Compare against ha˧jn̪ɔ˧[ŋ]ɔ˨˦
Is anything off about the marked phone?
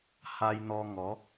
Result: no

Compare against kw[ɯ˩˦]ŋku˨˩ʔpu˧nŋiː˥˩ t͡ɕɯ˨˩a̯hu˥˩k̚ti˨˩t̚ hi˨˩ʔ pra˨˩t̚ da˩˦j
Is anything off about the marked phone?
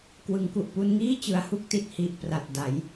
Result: no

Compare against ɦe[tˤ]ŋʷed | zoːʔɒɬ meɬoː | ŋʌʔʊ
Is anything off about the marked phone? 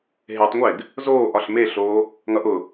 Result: no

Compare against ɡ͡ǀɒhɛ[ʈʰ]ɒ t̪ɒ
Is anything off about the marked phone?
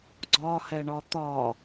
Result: yes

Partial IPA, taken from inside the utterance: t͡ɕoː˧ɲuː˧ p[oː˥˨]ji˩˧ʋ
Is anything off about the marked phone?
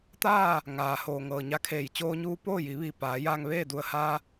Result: no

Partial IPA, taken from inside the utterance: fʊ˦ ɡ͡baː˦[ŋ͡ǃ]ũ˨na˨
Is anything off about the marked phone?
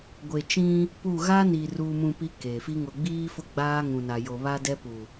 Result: yes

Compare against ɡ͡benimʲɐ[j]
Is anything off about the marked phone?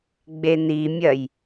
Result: no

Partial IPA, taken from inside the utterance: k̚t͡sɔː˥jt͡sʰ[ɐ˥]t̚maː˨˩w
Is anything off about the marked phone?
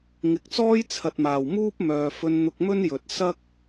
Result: yes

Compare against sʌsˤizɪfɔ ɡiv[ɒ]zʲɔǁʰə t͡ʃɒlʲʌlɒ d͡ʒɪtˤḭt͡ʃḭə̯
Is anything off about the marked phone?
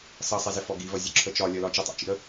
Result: yes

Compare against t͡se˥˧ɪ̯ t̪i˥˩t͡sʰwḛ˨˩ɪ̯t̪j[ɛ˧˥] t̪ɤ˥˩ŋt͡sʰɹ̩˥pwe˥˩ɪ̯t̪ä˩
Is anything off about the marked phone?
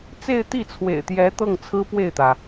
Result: no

